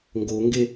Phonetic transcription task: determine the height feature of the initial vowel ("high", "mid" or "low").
mid